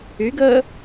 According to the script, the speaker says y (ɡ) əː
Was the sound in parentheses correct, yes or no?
yes